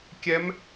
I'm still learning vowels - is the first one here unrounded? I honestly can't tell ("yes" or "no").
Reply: yes